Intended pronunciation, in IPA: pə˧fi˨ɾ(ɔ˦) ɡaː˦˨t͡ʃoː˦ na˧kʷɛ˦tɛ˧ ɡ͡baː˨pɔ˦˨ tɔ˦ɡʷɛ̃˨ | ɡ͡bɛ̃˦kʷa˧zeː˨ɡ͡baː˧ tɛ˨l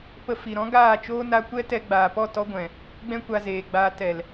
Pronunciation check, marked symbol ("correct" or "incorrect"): incorrect